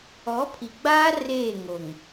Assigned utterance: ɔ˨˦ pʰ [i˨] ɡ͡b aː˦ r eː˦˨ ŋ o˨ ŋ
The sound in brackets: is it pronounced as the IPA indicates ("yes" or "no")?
yes